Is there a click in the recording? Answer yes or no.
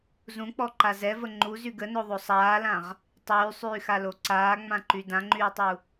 yes